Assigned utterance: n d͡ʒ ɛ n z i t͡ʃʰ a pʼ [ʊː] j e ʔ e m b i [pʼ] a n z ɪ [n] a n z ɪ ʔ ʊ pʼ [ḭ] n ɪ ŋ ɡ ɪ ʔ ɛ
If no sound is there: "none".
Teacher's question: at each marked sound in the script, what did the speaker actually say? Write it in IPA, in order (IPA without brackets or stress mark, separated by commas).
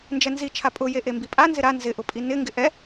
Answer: ʊ, pʼ, ɾ, i